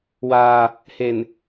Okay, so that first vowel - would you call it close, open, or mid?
open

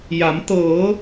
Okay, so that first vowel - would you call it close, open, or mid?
open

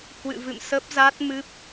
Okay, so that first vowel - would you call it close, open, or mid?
close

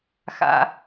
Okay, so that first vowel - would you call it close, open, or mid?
open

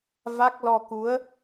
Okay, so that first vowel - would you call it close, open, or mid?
open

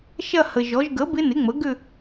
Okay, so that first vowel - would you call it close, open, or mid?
open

